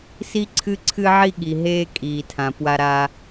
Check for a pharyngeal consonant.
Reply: present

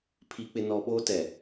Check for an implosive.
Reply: present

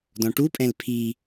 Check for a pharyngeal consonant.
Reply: absent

